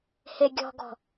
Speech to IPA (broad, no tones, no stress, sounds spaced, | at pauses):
h e ɡʲ ɔ̤ ɡ ɔ̤